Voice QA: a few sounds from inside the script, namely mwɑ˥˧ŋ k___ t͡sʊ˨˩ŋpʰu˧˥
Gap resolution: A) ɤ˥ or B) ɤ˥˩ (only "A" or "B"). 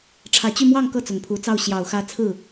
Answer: B